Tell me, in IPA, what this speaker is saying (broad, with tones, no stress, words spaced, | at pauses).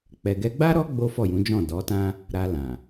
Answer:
k͡pɛ˨ɡɛ˧ɡ͡ba˦ɾɔ˦ ɡ͡bo˦fɔ˦˨jũ˨˦d͡ʒɔ̃˦˨ dɔ˨˦tã˦ | ɾa˧lã˨